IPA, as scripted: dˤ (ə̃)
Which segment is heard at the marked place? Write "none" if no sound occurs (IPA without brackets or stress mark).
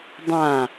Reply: ã